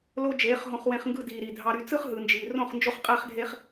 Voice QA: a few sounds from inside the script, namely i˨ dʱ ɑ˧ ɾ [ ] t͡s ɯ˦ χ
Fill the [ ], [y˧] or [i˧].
y˧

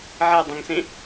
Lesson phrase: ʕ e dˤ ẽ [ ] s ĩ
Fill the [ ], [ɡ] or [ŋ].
ŋ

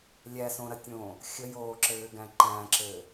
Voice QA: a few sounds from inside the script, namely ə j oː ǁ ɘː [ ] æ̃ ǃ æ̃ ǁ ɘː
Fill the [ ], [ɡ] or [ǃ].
ɡ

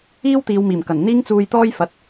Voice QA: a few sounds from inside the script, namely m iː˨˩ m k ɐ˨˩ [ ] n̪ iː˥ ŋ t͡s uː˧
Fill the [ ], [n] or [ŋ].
n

